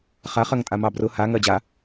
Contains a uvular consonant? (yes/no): yes